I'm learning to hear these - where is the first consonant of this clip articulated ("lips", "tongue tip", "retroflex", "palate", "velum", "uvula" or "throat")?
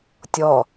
tongue tip